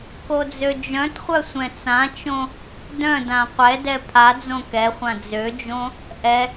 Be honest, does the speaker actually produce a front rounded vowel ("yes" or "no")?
yes